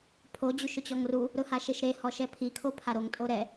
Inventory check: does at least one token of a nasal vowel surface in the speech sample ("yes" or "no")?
no